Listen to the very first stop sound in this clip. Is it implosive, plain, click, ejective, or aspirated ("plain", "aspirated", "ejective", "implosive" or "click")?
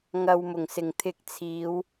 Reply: aspirated